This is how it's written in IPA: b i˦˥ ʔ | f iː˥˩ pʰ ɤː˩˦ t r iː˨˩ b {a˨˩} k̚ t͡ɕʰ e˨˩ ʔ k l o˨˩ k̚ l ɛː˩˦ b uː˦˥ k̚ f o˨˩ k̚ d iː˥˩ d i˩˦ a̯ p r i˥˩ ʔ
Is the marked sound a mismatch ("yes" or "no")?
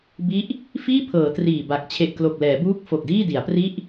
no